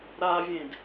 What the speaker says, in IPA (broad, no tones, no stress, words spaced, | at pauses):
ɾavʲẽd